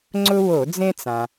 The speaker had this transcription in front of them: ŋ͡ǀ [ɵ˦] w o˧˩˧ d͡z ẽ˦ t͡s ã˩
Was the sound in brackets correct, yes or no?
no